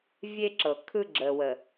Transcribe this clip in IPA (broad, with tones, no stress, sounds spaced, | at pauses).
vʲ e˦ ǁ ɤ˨ kʰ ɯ˦ ɡ͡ǁ ə˨ w ə˨